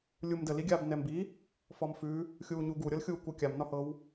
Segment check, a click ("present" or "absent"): absent